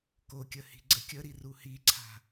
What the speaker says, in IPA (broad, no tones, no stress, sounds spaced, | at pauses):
k o kʲ ə h i̤ ɡ͡ǀ ə kʲ ə ɾ i r u h i ǀʰ a̤